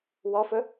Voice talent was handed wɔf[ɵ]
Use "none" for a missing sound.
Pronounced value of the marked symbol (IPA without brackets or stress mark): ɵ